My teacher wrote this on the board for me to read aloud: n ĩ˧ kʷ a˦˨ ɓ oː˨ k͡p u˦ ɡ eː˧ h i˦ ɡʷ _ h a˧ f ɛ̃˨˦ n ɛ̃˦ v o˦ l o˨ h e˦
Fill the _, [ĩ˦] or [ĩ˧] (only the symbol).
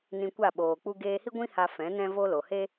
ĩ˦